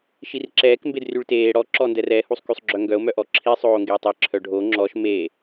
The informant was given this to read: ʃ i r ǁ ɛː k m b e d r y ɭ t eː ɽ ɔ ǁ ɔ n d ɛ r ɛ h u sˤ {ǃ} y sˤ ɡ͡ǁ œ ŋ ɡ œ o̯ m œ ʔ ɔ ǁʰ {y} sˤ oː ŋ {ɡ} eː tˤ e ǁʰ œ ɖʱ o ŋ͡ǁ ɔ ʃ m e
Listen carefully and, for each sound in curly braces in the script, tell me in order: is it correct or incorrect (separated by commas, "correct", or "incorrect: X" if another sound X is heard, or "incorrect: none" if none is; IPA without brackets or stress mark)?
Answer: incorrect: k, incorrect: i, correct